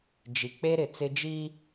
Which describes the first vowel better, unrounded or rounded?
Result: unrounded